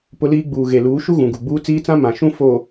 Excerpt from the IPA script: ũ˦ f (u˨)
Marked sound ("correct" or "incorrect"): incorrect